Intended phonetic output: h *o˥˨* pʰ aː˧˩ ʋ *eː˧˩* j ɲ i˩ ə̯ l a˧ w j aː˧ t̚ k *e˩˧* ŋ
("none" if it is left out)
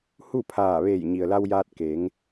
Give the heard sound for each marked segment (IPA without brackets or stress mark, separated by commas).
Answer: u˥˨, eː˧˩, e˩˧